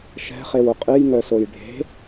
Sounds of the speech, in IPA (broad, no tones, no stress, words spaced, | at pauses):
ʃɛ̤χewʊ qʼɨjŋœsoj ɖʱe̤